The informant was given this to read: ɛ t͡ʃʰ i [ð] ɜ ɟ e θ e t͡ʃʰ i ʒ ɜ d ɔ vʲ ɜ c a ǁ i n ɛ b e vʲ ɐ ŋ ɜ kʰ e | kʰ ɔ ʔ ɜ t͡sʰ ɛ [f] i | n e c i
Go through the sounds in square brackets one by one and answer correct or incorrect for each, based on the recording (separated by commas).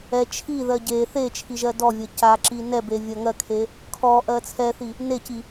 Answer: correct, incorrect